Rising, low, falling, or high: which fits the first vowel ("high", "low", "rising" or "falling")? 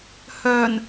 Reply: low